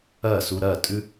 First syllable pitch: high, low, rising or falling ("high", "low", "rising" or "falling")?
falling